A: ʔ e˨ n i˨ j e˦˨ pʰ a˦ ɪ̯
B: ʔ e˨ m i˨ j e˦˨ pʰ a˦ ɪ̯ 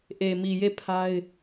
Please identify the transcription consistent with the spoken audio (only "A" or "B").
B